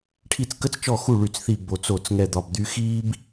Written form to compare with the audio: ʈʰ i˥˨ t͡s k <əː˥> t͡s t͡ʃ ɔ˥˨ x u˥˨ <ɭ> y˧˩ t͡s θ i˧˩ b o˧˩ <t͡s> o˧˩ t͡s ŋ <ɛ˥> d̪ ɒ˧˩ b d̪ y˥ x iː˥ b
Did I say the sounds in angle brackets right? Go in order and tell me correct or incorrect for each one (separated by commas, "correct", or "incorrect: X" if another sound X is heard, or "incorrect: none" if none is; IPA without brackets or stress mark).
incorrect: ə˥, correct, correct, incorrect: ɛ˥˨